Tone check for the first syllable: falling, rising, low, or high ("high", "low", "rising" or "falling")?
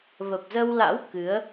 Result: low